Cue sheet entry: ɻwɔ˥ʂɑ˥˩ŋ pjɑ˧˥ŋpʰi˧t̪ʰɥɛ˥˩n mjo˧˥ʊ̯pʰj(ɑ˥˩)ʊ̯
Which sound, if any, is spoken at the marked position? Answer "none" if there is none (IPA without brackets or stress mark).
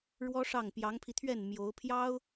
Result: ɑ˥